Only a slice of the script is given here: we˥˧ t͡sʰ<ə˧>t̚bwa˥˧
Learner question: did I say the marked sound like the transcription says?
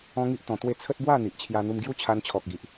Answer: no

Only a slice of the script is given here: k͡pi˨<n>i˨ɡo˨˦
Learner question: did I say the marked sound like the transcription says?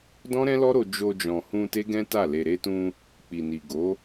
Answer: yes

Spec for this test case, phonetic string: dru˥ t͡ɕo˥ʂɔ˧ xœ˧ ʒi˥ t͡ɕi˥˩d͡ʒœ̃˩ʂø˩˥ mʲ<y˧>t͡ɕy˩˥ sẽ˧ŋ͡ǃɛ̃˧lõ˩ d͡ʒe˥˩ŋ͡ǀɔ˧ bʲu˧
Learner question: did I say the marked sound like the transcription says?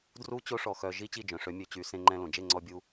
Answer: no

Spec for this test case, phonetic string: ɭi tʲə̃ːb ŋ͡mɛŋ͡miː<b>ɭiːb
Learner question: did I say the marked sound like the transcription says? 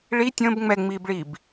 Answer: yes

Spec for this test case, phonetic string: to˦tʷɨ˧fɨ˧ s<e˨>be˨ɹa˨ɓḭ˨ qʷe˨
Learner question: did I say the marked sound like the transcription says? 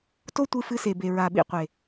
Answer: yes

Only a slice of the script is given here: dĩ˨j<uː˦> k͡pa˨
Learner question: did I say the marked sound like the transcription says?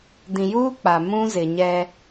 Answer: yes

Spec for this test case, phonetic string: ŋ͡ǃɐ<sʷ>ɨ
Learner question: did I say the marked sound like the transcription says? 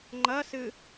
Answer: no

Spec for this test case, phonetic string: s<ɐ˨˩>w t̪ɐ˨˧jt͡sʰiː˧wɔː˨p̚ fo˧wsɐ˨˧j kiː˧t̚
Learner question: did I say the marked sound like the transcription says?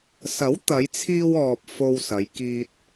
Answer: no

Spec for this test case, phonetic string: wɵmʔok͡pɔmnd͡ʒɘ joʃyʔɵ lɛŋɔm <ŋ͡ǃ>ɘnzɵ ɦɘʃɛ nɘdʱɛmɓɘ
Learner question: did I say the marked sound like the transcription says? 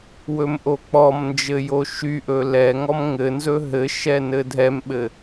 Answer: no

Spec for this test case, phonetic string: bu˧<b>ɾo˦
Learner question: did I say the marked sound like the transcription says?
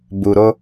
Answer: no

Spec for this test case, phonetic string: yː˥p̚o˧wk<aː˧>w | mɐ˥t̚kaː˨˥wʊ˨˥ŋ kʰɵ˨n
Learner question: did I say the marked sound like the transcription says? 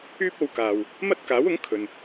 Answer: no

